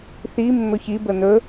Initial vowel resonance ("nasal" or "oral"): oral